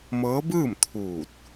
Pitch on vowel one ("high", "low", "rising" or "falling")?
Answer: rising